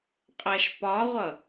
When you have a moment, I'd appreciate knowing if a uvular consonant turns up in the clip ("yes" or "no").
yes